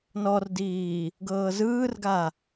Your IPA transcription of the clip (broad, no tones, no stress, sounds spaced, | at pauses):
n ɔ r d iː | ɡ ɤː z ɯː r ɡ a